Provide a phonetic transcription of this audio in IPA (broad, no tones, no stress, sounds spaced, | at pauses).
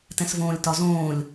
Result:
t ɛ̃ s v õː lʲ t ɒ z õː lʲ